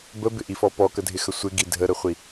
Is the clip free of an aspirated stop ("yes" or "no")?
yes